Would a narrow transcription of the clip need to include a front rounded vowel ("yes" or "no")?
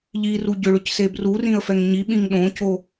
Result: yes